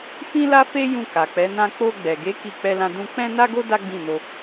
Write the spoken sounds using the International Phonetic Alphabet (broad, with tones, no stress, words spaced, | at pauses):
fĩ˦la˦fe˦ jũ˦˨ka˨k͡pɛ˨˦nã˦ k͡po˧ɡ͡bɛ˨ɡe˨˦ ki˦˨ k͡pɛ˧lã˧ dũ˧ k͡pɛ̃˦na˦ɡo˦ da˦ɡ͡bĩ˦˨no˧